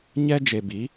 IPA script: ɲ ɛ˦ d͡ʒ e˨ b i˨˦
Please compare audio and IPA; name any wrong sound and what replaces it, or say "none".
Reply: none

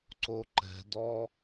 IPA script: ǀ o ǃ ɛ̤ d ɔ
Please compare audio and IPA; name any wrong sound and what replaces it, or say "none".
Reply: none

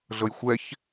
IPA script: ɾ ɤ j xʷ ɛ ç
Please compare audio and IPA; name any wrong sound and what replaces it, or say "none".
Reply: ɾ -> ɮ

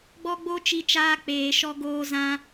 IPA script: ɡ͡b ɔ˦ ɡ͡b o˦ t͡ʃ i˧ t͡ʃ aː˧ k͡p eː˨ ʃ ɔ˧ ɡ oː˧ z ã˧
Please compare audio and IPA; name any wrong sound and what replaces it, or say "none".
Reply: none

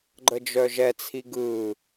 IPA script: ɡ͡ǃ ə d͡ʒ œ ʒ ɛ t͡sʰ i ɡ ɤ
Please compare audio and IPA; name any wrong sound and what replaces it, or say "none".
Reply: ɤ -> ɯ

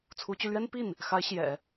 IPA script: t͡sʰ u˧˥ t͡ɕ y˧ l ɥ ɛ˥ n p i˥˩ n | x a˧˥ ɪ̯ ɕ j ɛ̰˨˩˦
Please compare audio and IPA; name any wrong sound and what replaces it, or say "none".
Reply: none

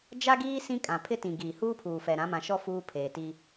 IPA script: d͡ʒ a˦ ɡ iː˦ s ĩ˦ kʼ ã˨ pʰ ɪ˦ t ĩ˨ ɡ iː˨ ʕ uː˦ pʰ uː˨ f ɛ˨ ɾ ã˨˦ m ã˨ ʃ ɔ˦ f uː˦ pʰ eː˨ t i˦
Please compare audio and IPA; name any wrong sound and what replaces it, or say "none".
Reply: ʕ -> h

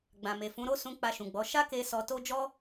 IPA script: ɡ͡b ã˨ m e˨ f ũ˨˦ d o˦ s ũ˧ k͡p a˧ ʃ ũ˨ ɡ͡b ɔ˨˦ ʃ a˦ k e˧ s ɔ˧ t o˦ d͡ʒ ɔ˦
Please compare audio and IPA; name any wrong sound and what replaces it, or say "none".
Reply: d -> ɾ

